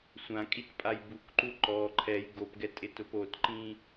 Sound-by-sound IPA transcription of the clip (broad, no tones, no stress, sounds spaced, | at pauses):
sʷ ã kʼ i t pʼ a j b u k ǃ u ǃ ɔ ǃʰ ɛ j ɡ o p ɡ ɛ tʼ ɪ t ʊ p o t ǃ ĩ